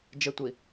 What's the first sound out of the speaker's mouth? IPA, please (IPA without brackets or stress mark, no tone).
d͡ʒ